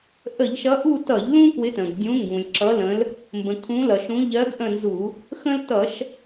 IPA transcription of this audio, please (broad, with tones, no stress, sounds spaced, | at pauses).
ʔ ə˧˩˧ ʎ ʃ ʌ˨˦ ʔ u˦˨ t ʌ˧˩˧ ʎ l ũ˦ k w ɪ˨˦ t ə̃˩ ɡ dʲ ũ˨˦ ŋ ɡ ũ˩ lʲ ǁ ʌ˨˦ l ə̃˨˦ l | m b ə̃˩ kʰ ũ˨˦ l ʌ˩ ʃ ũ˨˦ ʎ ɜ˨˦ ɡ ʔ ə̃˦˨ n z u˧˩˧ | x ə̃˦ l t ʌ˧˩˧ ʃ